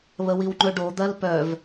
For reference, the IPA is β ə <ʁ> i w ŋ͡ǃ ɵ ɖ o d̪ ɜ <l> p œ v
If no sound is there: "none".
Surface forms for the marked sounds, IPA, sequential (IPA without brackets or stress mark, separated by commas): w, l